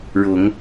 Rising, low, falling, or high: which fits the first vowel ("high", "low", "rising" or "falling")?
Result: low